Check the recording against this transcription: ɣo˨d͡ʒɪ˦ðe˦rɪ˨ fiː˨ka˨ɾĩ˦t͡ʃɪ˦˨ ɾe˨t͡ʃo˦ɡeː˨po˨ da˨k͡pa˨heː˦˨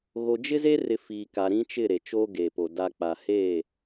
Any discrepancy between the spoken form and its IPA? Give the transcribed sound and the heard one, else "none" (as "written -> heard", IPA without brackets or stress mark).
ð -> z